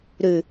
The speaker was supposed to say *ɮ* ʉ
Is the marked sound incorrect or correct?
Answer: incorrect